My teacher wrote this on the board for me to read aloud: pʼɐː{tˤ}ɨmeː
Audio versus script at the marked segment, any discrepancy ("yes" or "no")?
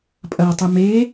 no